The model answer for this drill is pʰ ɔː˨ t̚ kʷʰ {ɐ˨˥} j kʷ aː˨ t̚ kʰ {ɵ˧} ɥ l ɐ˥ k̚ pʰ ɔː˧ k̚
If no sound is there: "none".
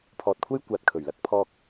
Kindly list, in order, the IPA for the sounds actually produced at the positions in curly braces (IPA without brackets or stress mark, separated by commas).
ɐ˥, ɵ˨˩